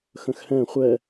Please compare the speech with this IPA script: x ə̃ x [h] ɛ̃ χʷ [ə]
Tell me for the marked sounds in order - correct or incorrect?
correct, incorrect: ɛ

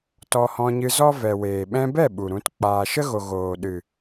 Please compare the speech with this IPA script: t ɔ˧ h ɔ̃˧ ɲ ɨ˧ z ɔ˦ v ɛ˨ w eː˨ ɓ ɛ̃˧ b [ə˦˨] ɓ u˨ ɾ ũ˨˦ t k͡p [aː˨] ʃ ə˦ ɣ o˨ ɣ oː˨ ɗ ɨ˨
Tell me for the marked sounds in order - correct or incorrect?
incorrect: ɛ˦˨, correct

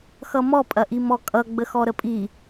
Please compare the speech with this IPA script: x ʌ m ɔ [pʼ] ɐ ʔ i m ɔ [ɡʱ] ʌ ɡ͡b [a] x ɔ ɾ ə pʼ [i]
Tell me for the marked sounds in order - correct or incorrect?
correct, incorrect: kʼ, incorrect: ə, correct

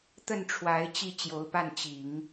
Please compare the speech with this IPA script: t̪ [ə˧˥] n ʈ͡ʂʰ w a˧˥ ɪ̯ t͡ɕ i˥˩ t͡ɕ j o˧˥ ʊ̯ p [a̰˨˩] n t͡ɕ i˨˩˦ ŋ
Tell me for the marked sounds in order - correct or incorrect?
incorrect: ə˥˩, incorrect: a˥˩

